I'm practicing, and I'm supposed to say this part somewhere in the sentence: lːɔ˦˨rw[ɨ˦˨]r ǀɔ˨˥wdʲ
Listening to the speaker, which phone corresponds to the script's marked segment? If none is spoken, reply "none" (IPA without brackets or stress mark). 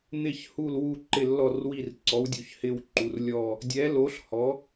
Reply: i˦˨